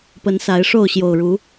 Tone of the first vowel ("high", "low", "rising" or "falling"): rising